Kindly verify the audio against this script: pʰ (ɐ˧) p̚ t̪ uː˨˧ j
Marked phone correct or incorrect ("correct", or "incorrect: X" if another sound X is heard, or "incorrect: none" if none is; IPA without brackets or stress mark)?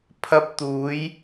correct